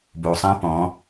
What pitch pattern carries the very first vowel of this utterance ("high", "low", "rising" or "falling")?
low